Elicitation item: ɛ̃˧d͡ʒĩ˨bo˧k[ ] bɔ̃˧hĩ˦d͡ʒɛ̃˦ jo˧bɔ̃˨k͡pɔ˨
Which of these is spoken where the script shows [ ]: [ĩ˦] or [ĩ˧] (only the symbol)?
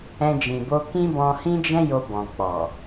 ĩ˦